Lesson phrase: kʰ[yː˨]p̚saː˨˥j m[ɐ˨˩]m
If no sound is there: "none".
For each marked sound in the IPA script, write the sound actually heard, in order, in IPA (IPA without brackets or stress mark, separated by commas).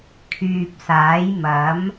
yː˨, ɐ˨˥